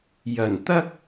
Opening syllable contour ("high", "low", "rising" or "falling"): low